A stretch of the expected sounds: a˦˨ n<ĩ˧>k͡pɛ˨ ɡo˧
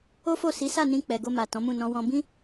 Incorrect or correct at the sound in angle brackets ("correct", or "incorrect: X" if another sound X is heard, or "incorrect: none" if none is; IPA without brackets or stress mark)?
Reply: correct